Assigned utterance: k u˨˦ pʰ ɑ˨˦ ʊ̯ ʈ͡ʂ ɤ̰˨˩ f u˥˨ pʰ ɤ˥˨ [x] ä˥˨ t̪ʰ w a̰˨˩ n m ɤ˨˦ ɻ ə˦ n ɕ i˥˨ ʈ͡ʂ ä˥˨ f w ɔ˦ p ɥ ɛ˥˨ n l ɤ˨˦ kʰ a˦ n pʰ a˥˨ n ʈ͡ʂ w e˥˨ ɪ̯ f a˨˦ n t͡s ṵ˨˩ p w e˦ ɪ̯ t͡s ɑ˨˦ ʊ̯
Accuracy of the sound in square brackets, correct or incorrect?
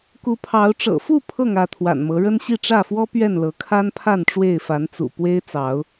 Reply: incorrect: ŋ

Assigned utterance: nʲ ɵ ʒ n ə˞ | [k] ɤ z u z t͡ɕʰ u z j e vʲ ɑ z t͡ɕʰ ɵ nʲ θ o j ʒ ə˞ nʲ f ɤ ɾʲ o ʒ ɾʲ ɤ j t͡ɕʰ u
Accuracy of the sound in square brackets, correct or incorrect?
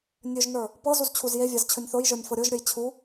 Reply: incorrect: p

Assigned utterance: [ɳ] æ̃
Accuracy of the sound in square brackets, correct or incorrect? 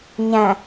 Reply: incorrect: ɲ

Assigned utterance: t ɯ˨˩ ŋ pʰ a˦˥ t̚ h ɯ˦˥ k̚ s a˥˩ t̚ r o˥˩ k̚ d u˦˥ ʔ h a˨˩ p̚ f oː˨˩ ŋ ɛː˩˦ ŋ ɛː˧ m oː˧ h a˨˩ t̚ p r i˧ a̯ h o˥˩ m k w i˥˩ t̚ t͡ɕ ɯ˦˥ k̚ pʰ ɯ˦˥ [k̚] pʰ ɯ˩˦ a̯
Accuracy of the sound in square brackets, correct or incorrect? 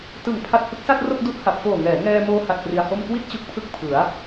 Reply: correct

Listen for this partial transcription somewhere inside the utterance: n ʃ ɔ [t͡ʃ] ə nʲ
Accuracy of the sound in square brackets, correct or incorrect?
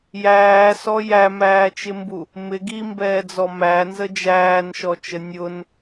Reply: correct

